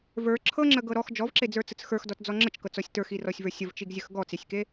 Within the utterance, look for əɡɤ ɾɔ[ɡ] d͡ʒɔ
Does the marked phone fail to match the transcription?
yes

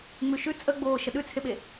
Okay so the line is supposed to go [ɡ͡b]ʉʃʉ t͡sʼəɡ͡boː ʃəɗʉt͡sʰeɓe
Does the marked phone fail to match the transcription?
yes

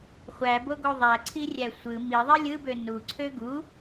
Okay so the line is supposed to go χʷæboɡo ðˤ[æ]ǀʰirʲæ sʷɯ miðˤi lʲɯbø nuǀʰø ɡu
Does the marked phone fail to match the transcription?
no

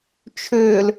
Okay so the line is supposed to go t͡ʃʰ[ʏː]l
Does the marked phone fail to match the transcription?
no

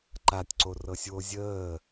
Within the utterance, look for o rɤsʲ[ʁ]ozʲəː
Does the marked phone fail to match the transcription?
yes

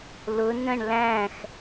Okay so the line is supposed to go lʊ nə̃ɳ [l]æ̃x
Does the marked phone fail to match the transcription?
no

